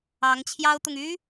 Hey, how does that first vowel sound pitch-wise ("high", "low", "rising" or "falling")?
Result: rising